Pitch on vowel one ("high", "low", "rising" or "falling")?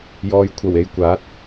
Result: low